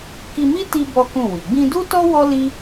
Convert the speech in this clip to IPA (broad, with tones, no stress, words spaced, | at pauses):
ki˧mi˦ ti˧ bɔ˦kũ˦˨wi˨ ɡ͡bĩ˧du˦tɔ˦ wɔ˦ li˦